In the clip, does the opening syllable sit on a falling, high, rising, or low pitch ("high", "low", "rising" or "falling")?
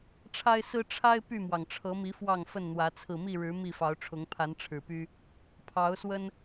high